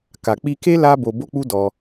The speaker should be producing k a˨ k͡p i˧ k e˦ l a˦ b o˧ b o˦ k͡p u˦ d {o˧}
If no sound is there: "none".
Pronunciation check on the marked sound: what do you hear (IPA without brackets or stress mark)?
ɔ˧